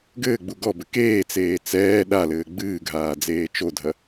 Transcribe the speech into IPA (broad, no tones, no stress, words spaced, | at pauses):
ɡɘːɡ͡bu ɡɔbɘ keːt͡seː t͡sɛː ɗalɘː ɡ͡bɨːɡʱaː d͡zeːt͡ʃodʱɐ